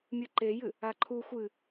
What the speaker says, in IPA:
mʲ ɨ ǃ e j ɨ | a ǃʰ u xʷ ɨ

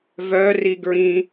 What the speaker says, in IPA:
v œ r i ɡ ɹ ĩ

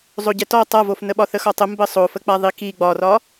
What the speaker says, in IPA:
zˤ o ɟ ɛ t ɔ tˤ a v o f n ə ɓ ɒ θ ə x ɒ tˤ ə m b ə sˤ o f ə k͡p a ðˤ i k i ɡ͡b ɒ r ɒ

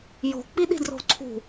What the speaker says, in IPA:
j o̤ k͡p i ɗ i̤ d r o̤ ǀʰ ṳ

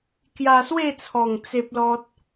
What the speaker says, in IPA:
k j a˧ s w e˥˧ t͡sʰ ɔ˨˩ ŋ t͡s e˦ p̚ l ɔ˦ t̚

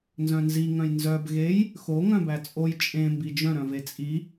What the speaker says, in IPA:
n z œ̃ n z i ŋ œ̃ j n z œ b ɣ e j | x o ŋ œ̃ b æ t͡sʼ o j t͡ʃʼ ẽ m b i d͡ʒ œ̃ ɾ œ̃ v e t͡sʼ i

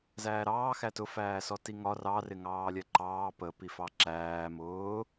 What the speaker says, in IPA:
z æː ɾ ɑː x æ t ʊ f æː s ɔ t i ŋ ɒ r ɑ r ɪ ŋ ɑː lʲ ɛ ǃ ɑː p ə p i f ɑ ǁ æː m ʊː

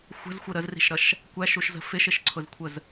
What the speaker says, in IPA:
xʷ ə̤ z xʷ ə ɾ ə z r i̤ ʃ ɾ ʌ ʃ | kʷ æ ʃ u ʃ z ə̤ f ɪ ʃ ɪ ʃ ǀʰ ʊ z kʷʰ ə z

